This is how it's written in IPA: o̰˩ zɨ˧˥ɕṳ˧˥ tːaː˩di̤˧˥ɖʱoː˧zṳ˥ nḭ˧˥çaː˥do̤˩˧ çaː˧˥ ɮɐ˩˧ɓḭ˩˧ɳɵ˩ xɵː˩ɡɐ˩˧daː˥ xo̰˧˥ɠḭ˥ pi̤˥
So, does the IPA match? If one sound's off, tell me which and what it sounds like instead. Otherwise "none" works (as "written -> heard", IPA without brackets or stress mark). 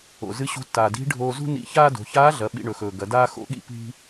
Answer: none